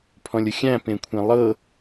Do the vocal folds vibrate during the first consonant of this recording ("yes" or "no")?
no